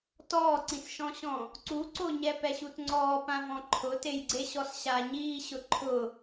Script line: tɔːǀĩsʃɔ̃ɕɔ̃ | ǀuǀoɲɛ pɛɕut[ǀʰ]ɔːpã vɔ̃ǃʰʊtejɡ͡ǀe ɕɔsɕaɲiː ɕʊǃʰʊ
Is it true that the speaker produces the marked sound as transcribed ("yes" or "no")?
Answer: no